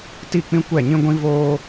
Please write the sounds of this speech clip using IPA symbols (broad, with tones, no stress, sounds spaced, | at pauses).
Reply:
t i˦˨ k͡p ĩ˦ kʷ ɛ˦˨ ɲ ĩ˦ ɡʷ ĩ˦ v oː˦